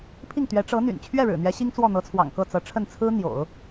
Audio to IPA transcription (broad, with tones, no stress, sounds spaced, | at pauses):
pʰ i˥˩ ŋ t̪ ɥ ɛ˧˥ ʈ͡ʂ ɤ˧˥ n̪ y̰˨˩ n t͡ɕʰ ɥ ɛ˥˩ ɻ ɻ̩˨˩ n̪ ɥ ɛ˧˥ ɕ i˥ ŋ t͡s w ɔ˥˩ n̪ ɤ˧˥ t͡sʰ w ɑ̰˨˩ ŋ k ɤ˥˩ t͡s ɤ˧˥ ʈ͡ʂʰ ə˥˩ n t͡sʰ ɹ̩˥ n̪ j o̰˨˩˦ ʊ̯